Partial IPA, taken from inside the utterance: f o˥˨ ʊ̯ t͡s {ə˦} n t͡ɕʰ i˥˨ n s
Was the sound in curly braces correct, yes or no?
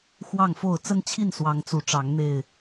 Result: yes